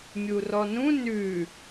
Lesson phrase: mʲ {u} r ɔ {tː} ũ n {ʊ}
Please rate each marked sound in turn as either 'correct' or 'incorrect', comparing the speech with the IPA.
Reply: correct, incorrect: n, incorrect: ʉ

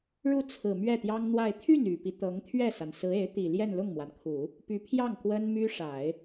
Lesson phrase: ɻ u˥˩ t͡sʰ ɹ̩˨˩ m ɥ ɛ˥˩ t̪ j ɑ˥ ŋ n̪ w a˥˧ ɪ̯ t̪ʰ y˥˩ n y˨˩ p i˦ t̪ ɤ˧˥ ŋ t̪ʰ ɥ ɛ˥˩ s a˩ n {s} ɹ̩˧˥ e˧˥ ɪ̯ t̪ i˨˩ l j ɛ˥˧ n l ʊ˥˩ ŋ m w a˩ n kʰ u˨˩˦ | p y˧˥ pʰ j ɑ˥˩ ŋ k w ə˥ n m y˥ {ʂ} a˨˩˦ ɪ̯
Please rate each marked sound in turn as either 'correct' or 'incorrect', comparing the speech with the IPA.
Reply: correct, correct

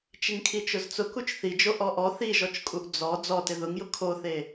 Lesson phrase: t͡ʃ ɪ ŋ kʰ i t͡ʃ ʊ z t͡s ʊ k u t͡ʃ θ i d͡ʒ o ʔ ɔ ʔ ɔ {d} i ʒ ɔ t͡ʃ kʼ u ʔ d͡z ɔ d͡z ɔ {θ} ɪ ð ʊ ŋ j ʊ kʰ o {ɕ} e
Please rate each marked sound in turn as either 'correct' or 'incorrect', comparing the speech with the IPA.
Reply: incorrect: θ, incorrect: t, incorrect: θ

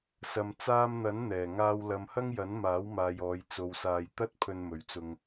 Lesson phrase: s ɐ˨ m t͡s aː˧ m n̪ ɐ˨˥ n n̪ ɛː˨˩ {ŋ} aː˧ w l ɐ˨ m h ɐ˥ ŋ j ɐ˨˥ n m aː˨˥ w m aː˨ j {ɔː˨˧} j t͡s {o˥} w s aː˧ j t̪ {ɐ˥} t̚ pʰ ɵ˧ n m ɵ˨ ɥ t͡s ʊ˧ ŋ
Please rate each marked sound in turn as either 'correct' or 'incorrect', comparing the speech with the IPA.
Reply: correct, correct, incorrect: o˧, correct

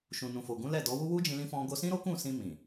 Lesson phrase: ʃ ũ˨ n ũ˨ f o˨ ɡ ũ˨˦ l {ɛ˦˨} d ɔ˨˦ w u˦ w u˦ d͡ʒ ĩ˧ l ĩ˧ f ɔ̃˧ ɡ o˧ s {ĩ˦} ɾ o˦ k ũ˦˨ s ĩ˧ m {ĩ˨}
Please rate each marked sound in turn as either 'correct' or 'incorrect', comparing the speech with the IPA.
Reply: correct, correct, correct

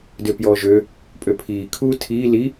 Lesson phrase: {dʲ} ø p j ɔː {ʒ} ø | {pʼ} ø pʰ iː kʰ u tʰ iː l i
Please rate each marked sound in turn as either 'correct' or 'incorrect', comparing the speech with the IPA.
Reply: incorrect: d, correct, correct

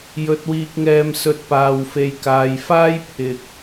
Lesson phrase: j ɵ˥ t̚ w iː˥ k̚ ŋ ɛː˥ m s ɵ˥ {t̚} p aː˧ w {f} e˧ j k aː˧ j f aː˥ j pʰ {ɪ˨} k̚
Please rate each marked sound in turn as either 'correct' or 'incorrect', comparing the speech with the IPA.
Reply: correct, correct, correct

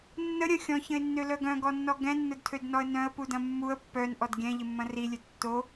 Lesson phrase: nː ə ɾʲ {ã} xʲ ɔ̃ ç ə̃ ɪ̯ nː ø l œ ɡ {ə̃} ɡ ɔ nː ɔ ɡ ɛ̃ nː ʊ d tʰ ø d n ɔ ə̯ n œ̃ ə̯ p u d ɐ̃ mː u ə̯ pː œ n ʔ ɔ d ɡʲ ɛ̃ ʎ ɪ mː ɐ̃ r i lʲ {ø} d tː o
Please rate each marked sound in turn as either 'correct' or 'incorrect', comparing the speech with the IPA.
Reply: incorrect: ɐ̃, incorrect: œ̃, correct

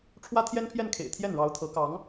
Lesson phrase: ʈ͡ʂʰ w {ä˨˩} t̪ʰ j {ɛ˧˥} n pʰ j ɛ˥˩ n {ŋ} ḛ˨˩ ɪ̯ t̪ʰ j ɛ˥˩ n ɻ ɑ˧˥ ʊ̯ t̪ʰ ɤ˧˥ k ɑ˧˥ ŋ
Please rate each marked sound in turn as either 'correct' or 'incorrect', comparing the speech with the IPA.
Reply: incorrect: ä˥, incorrect: ɛ˥, incorrect: kʰ

